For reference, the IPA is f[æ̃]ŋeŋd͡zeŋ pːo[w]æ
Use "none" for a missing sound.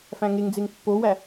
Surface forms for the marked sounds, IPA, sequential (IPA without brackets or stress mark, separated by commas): æ̃, w